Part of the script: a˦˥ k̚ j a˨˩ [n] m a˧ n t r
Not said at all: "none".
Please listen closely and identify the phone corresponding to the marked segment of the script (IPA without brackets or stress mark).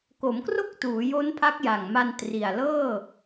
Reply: ŋ